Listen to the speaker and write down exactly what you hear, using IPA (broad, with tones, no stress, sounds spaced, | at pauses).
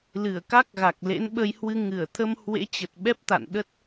l ɨ˧˩ ə̯ k a˦˥ k̚ ɣ a˨˩ k̚ l ḛ˧˥ n ɓ ə˧ j h w ɨ˧ ŋ ɨ˧˩ ə̯ t̪ʰ ə˧ m h w ḛ˧˥ t͡ɕ ə˨˩ t̚ ɓ ɛ˦˥ p̚ t̪ a̰˧˨ n ɗ ə˦˥ t̚